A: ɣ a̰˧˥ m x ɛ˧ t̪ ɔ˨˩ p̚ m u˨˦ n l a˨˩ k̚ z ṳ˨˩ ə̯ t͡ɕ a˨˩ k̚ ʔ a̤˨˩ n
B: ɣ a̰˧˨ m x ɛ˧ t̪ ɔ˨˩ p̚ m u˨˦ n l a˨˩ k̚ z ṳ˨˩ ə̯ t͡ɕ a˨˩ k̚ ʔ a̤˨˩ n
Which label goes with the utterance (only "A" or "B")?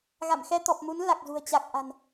B